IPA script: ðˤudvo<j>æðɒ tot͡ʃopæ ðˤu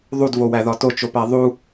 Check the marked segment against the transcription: incorrect: w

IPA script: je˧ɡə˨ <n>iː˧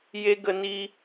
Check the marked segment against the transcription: correct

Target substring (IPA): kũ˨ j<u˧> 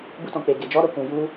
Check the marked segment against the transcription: correct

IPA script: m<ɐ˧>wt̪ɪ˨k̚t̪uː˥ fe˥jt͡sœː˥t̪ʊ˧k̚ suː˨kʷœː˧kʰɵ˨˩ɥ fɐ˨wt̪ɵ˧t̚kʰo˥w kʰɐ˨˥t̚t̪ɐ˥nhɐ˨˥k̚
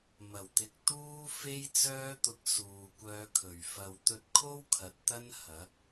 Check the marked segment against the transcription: incorrect: ɐ˨˩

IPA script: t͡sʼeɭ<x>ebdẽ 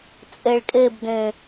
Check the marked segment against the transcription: incorrect: kʼ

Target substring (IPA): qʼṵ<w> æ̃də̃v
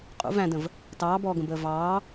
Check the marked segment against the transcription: incorrect: v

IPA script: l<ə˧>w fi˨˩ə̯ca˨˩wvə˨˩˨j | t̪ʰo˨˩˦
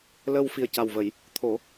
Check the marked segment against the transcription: correct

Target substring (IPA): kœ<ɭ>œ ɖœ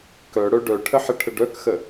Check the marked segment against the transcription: incorrect: ɽ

